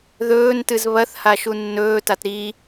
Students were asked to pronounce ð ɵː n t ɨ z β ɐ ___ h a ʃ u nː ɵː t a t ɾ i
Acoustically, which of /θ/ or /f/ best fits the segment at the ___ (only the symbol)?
θ